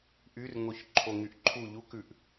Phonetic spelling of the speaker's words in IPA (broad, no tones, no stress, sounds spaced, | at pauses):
ʔ y r ŋ o ç ǃʰ o ŋ y ʔ ǃʰ u ʎ u k ʉ ʔ